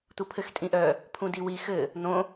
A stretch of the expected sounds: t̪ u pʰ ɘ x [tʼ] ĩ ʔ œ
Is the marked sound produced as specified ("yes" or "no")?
yes